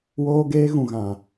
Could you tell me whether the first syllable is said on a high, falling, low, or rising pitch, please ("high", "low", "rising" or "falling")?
high